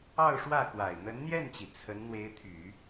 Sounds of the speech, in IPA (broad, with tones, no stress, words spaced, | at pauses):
ɑ˥˧ʊ̯ʂwä˥˩xwa˨˩ɪ̯ n̪ə˧˥nn̪jɛ˥˩nt͡ɕi˩ t͡sʰə˧˥n n̪we˧˥ɪ̯t̪ʰy˨˩˦